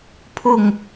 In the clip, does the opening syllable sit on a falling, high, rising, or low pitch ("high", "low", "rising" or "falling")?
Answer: falling